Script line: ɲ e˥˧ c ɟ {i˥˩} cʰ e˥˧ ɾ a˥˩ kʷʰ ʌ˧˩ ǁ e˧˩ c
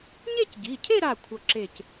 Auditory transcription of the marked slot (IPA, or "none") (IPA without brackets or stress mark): i˩˧˩